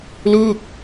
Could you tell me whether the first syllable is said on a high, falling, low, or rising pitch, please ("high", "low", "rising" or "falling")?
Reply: falling